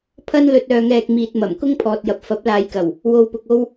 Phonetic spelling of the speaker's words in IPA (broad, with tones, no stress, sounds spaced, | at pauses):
pʰ ɐ˥ n l ɵ˧ t̚ œː˧ ŋ ɛː˧ k̚ m iː˨ t̚ m ɐ˨˩ m k ʊ˥ ŋ pʰ ɔː˨ t̚ j ɐ˨ p̚ f ɐ˨˥ p̚ l aː˨˧ j k ɐ˨˩ w | w o˧ w p ʊ˧ k̚ o˥ w